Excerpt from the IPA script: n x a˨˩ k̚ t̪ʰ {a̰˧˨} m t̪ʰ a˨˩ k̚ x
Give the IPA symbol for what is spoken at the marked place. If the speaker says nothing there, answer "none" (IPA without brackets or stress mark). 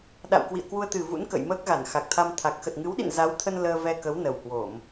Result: a˧